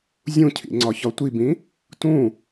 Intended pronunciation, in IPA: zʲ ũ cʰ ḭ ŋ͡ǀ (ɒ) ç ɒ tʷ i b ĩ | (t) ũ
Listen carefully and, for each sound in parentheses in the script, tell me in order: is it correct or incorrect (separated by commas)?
correct, correct